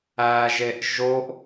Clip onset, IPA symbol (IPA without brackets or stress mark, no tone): æ